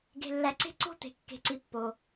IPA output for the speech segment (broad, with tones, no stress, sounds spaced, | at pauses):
ɡ e̤˨ lː æ˨ ǀ e̤˦˨ ǀ o̤˦˨ t̪ e̤˨ kː e̤˨ ǀ i˨ pː o˨